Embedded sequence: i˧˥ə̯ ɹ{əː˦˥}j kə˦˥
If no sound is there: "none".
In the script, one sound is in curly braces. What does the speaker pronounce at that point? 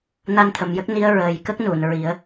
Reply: əː˨˩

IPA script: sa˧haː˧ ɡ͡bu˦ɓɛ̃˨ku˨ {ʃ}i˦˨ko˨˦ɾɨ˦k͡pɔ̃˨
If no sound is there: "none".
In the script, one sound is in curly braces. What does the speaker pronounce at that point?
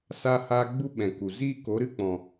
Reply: z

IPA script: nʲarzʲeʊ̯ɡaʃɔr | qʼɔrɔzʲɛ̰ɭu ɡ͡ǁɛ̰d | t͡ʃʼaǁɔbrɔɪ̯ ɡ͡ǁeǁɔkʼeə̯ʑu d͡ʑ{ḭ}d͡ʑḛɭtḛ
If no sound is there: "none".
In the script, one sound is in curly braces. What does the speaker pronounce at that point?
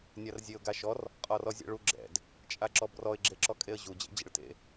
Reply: ḛ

